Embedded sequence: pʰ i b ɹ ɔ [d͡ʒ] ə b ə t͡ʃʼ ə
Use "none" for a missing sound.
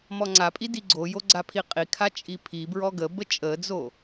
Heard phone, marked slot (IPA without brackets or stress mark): ɡ